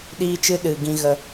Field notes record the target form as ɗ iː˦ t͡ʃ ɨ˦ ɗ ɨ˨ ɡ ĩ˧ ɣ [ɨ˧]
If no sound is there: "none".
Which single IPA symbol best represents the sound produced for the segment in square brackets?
ə˧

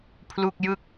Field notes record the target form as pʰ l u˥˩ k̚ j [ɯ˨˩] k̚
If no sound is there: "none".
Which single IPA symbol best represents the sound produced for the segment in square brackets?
ɯ˥˩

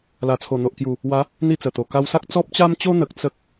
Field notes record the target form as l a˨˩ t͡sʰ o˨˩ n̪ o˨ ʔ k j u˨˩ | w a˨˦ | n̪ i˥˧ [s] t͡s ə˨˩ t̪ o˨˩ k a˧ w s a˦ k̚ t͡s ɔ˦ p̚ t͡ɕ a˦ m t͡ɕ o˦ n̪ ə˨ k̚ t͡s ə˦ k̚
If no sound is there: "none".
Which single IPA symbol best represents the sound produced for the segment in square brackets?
none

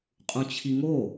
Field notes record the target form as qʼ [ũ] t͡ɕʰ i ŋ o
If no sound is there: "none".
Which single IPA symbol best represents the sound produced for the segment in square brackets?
ũ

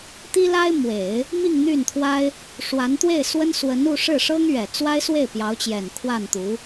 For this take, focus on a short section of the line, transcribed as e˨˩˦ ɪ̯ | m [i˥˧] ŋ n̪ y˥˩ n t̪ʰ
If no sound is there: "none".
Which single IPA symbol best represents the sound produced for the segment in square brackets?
i˥˧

